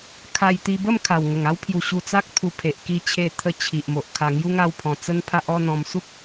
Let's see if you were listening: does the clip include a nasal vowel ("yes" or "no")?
yes